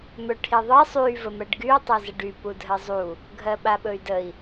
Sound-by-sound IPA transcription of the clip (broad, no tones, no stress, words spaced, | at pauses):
mɵʈʰiðˤɜ sˤy vəmɜɖɡyu̯ tˤɜzəɖy pudʱɜzˤu | ɡʱɜɓaɓɵy̯dəi̯